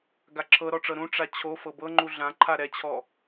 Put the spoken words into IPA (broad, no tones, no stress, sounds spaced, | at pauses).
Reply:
ɡ a ǁʰ ɤ ɾ ɔ ʈ͡ʂ ɤ ɾ ũ ʈ͡ʂ a t͡ɕʰ o f ɤ b ɤ ŋ͡ǃ u ɮ ã ǃʰ a ɾ ɛ t͡ɕʰ ɔ